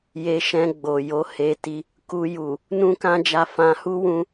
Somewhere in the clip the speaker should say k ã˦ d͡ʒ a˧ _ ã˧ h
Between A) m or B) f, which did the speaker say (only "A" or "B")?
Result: B